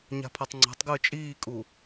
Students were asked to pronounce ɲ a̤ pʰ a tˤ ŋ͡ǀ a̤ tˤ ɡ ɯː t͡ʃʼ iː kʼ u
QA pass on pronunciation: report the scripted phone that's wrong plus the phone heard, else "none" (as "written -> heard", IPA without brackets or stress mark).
none